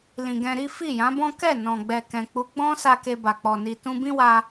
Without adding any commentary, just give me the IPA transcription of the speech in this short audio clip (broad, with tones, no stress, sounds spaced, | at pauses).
l ĩ˨ ɡ ɛ̃˧ ɾ i˦ f i˦˨ j ã˨˦ b ɔ̃˦ k ɛ˦˨ n ɔ̃˨ ɡ͡b ɛ˨ k ɛ̃˨ k͡p u˨˦ ɡ͡b ɔ̃˦ s a˧ k e˧ b a˨ k͡p ɔ˨ n i˨ t ũ˧ b ĩ˦ w a˧